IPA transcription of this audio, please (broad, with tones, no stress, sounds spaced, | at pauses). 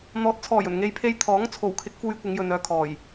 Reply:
n̪ ɔː˨ t̚ t͡sʰ ɔː˨˩ j ɵ˨˩ n ŋ e˨˧ j pʰ e˧ j t̪ʰ ɔː˨˥ ŋ t͡sʰ o˨˩ w kʰ ɪ˨˥ k̚ f uː˧ j kʷ ɪ˨˧ ŋ j ɵ˨ n œː˨ kʰ ɔː˨˩ j